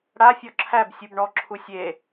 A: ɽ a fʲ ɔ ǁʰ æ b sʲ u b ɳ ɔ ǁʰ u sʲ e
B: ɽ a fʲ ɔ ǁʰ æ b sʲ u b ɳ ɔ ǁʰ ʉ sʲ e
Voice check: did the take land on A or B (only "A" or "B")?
A